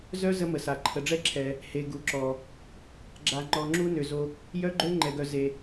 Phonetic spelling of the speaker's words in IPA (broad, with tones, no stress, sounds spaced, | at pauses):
z œ˦ z ə˦ m ə˨ s a˨ ǃʰ ə˨ ɖ͡ʐ ɛ˦ ǁʰ ɛ˨ | h e˨ ɡ u˨ ǁ ɔ˨ | ɡ͡ǁ a˧ ŋ͡ǃ ɔ˧ ŋ͡ǁ u˦ n ø˨ z o˧ | j œ˦ ɡ͡ǃ ø˦ ŋ͡ǃ ɛ˨ ɡ œ˨ z e˨